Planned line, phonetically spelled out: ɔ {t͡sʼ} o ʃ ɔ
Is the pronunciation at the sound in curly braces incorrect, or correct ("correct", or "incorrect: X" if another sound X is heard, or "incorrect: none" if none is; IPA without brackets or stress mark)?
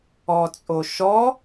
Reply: correct